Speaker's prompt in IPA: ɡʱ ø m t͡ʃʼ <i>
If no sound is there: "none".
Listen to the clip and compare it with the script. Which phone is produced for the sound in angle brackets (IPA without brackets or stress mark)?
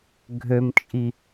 i